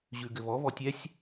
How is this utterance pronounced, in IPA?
ʑ ʉ ɡ ɘ v ɔ v ɔ tʲ ɛ sʲ

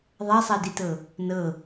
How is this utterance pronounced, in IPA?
ðˤ a sˤ a d i t ɤ | n ɤ

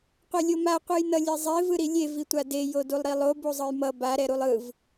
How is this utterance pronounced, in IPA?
qʷ ɛ lʲ o m a qʷ ɯ j n ʌ lʲ e zˤ e v ɯ ɾ i lʲ e v i tʷ a d e j o d u lˠ ɾ i lˠ o b u zˤ ɯ j m ʌ b a ɾ ɛ ɾ u lˠ ɯ v

